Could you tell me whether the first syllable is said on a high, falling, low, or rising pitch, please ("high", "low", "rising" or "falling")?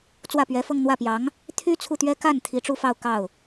falling